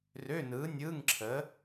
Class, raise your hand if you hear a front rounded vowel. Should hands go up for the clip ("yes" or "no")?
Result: yes